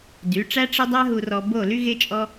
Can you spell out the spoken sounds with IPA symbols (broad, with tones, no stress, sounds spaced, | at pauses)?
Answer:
d y˨˦ ʈ͡ʂ æ˦ ʈ͡ʂ ɪ˦ dˤ a˦ ɦ u˧ r ɔ˧ b o˦˨ l y˦ ɣ ɪ˦ t͡ʃʼ ɔ˦